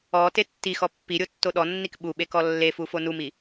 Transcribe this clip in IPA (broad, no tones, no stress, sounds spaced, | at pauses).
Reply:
ɔ t e tː i x ɔ pː i ɾʲ o tː o ɗ ɔ nː i k ɓ u ɓ e k ɔ lː e f u f o n u m i